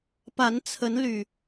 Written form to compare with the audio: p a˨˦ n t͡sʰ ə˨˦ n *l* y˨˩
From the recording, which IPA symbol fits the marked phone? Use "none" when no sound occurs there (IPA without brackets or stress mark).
l